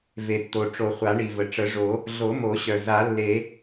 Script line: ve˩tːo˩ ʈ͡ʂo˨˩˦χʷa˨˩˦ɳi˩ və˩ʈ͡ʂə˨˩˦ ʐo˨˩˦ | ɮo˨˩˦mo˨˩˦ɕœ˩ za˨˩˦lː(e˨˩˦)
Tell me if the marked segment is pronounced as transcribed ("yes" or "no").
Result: yes